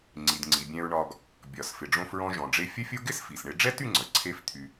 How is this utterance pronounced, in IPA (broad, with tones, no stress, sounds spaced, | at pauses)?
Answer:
ŋ͡ǀ i˩ d ŋ͡ǀ i˩ bʲ ɛ̃˧ ɹ ɳ ɒ˧ ɡ | bʲ ɒ˩ s f ɪ˩ ɖ͡ʐ õ˧ f ɹ ɔ̃˧ ʒ ɔ̃˩ ɖ͡ʐ e˧ fʲ ə˥ fʲ o˥ ɡ ɪ˥ s f i˩ s ɳ ɪ˧ ɖ͡ʐ ɛ˥ t y˥ ŋ͡ǀ ə˩ ǀʰ e˥ f t̪ʰ y˧